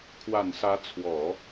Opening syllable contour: low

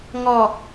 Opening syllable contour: low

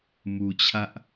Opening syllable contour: low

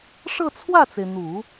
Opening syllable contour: falling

